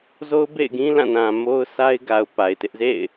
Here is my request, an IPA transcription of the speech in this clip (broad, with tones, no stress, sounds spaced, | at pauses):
z o˦ ʊ̯ b ḛ˦˨ ɪ̯ ɡ ĩ˦ l ã˦˨ n ã˨ m o˦ ʊ̯ sʰ a˦ ɪ̯ ɡ a˨ ʊ̯ p a˨ ɪ̯ t ɪ˦ ʔ z ḛ˦˨ ɪ̯